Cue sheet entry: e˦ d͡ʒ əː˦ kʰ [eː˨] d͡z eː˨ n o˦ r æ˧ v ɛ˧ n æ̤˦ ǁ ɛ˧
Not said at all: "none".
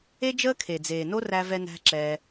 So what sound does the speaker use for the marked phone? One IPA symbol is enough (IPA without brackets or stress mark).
e˨